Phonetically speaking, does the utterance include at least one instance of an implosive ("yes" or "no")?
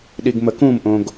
yes